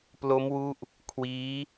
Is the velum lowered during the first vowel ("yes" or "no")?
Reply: no